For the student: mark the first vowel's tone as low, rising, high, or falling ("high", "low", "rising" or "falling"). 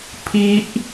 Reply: high